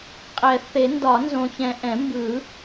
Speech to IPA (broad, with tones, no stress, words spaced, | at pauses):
qʼɛ˨˩˦ θe˨˩˦ndɒ˨˩˦nzõ˨çɛ̃˨ ʔɛ̃˨˩˦mbɯ˨˩˦